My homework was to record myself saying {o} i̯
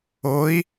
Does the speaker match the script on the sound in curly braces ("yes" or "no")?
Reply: yes